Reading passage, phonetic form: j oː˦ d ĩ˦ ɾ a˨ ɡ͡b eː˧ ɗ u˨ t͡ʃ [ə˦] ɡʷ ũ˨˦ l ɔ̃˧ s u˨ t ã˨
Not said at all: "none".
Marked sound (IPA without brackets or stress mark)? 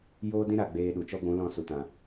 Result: ɔ˦